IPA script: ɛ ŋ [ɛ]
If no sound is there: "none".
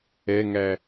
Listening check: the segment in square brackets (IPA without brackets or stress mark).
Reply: æ